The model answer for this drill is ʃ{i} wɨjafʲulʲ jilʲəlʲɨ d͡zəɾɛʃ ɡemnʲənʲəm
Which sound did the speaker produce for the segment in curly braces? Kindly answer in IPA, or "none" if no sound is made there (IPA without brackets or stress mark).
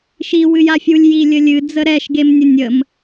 i